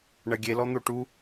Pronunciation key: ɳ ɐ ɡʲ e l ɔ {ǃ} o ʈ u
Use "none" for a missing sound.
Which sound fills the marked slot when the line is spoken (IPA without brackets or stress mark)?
n̪